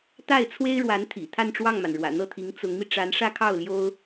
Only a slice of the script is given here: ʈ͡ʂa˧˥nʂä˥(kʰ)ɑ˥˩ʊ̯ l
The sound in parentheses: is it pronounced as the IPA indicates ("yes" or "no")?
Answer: yes